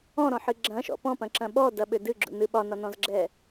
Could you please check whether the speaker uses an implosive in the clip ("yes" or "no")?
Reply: yes